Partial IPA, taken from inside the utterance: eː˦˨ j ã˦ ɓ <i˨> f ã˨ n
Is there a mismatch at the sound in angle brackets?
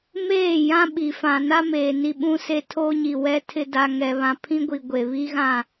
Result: no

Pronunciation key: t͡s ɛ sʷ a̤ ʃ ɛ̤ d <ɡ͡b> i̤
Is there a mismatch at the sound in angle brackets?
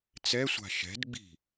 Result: no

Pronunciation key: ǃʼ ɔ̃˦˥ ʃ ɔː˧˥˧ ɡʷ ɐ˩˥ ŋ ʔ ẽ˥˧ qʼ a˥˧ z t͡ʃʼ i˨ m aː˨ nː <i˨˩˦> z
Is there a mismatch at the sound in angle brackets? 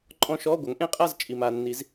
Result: no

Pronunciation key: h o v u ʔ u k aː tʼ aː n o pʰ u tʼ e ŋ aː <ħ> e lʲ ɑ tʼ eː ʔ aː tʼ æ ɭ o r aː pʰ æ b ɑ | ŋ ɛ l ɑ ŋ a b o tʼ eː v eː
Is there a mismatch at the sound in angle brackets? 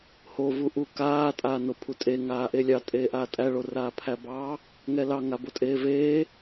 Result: yes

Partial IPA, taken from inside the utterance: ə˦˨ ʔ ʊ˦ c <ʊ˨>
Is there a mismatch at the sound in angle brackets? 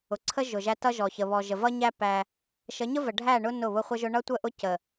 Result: yes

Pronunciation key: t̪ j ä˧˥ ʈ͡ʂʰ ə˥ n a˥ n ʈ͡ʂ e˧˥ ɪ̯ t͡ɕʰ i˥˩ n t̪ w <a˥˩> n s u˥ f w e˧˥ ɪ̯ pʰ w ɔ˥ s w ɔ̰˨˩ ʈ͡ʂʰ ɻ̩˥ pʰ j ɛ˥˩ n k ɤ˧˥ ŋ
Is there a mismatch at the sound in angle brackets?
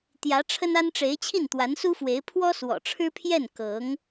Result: yes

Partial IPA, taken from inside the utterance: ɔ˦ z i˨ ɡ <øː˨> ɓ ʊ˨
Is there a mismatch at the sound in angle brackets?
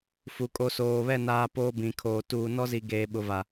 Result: yes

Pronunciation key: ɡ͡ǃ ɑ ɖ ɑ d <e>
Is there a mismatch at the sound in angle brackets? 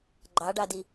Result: yes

